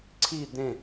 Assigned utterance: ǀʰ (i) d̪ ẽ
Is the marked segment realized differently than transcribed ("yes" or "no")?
no